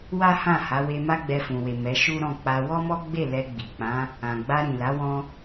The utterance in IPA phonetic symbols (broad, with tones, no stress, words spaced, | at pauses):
wa˦hã˦˨ ha˨˦we˧ ma˦ɡ͡bɛ˧fũ˨we˨ mɛ˨˦ʃu˦ ɾɔ̃˦˨k͡pa˧ wɔ˦mɔ˦ɡ͡be˦˨ lɛ˧ɡ͡bi˨k͡pã˨˦ | ã˨ ɡ͡ba˧ɾĩ˨la˨˦ wɔ̃˦